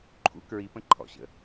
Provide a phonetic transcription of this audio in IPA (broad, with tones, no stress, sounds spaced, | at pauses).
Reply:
ǃʰ ṵ˧ k ɹ i˩˧ p ə̃˩˧ ǃʰ ɔ̰˩ ɕ ə̰˩